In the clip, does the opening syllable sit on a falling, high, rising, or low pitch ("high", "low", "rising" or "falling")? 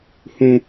high